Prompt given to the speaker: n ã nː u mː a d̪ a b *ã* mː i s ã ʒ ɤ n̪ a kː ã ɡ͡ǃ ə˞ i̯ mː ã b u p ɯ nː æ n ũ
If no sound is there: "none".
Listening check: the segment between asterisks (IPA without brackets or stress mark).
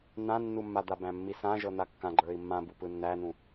æ̃